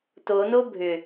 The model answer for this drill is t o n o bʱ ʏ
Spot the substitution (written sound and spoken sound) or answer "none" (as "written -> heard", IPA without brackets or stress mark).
none